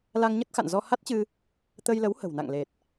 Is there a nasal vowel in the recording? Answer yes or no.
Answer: no